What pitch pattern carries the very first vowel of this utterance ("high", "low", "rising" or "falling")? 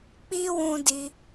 high